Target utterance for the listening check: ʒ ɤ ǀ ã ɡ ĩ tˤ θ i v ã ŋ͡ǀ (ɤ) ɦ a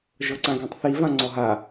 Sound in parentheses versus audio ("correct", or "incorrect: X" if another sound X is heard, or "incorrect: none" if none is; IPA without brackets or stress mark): incorrect: ɔ